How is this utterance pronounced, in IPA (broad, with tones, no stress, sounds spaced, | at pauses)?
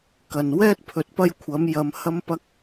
k ɐ˨ n w ɛː˥ t̚ pʰ ɵ˨ t̚ p ɐ˥ j kʷʰ ɐ˨˥ m j ɐ˨˧ m h ɐ˥ m p ɐ˥ k̚